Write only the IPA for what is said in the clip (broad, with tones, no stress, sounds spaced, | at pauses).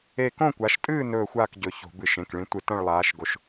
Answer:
e˥˧ k õ˥˧ kʷ a˨˦ ʃ tʼ ɨː˥˧ n ɵː˥˧ xʷ a˥˧ k ɟ ɵ˨˦ ç o̤˧˩˧ b ɨ˧˩˧ ʃ ẽ˩˧˩ k ɭ ĩ˨˦ tʷ ɨ˧˩˧ t ɐ̃˥˧ ɭ lˠ aː˨˦ ʃ ɡ o˨˦ ʃ